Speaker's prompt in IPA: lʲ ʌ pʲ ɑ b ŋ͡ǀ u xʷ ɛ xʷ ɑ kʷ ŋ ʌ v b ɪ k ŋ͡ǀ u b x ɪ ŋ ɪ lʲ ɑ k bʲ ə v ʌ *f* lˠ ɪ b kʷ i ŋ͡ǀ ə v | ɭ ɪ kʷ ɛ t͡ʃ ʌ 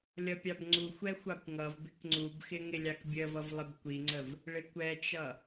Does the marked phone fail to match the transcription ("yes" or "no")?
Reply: yes